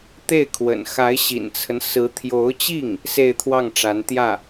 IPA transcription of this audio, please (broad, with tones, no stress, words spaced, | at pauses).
t̪e˥˩ɪ̯kʰwə̰˨˩n xa˧˥ɪ̯ɕḭ˨˩nt͡sʰə˦n sɹ̩˧˥t̪ʰjo˧˥ʊ̯t͡ɕi˥˩ŋ | se˥˧ɪ̯t̪ʰwɑ˥˩ŋ ʈ͡ʂa˧˥nt̪jä˥˩